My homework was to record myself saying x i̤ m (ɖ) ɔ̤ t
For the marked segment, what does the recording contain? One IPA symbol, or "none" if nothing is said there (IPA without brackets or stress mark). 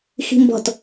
b